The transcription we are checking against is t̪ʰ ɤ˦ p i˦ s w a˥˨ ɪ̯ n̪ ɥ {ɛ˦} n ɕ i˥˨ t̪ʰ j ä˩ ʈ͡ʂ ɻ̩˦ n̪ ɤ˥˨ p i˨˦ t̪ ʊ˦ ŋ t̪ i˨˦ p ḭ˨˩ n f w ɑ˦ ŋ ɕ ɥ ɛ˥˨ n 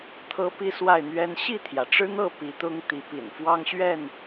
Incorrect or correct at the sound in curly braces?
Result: correct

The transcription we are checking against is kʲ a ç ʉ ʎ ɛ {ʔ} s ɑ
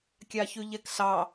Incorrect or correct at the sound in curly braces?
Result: incorrect: k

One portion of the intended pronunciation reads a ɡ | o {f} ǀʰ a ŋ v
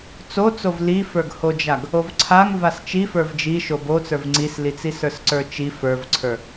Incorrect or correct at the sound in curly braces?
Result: incorrect: v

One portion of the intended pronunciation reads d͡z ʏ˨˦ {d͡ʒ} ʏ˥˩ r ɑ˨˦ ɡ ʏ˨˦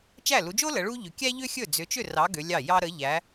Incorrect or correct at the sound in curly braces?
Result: incorrect: t͡ʃ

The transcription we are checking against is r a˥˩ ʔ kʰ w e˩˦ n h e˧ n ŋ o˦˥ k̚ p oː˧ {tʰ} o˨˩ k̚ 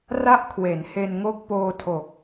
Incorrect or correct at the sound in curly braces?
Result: correct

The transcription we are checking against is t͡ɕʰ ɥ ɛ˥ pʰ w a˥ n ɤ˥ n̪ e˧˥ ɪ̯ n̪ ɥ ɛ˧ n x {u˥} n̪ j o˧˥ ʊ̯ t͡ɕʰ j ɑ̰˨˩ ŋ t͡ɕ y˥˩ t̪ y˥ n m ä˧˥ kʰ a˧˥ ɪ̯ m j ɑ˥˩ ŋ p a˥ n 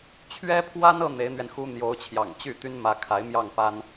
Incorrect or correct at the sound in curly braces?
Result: correct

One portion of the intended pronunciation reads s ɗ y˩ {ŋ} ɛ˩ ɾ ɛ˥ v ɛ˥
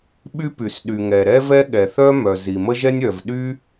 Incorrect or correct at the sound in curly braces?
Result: correct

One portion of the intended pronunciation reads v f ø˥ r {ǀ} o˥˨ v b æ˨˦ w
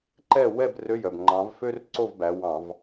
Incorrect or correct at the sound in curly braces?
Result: correct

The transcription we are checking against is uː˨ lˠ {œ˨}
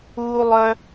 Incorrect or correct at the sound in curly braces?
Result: correct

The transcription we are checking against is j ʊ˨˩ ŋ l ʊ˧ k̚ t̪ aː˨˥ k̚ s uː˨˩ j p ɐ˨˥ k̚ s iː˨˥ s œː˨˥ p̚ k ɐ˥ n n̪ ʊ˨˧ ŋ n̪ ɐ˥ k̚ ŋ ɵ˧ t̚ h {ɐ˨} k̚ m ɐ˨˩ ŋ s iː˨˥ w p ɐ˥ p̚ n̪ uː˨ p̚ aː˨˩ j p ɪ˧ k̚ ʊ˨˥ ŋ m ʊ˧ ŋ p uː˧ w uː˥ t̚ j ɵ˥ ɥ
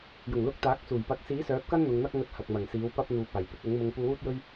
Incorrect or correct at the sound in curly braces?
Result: correct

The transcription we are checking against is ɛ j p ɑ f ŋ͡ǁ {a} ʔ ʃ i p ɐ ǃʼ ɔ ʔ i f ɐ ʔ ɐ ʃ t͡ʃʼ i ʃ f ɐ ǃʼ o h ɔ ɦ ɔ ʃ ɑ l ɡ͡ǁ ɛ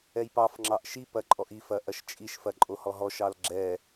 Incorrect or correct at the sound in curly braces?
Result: incorrect: ɑ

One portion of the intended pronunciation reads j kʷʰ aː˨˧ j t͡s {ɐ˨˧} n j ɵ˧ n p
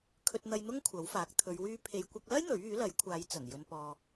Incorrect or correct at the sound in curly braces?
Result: incorrect: ɐ˨˩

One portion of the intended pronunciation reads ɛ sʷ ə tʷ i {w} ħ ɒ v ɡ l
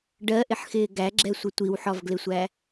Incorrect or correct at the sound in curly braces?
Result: correct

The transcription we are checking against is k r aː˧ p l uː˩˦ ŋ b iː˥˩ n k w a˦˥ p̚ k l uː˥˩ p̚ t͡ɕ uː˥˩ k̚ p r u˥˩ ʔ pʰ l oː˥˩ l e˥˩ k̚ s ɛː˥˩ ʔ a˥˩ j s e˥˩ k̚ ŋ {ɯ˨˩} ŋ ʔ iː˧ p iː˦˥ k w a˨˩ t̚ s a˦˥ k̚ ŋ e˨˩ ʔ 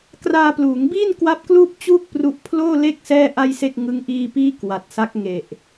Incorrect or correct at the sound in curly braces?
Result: incorrect: ɯ˦˥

